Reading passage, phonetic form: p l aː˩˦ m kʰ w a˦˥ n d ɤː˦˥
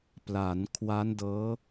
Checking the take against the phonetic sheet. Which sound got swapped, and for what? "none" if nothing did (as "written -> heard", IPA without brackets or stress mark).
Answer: m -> n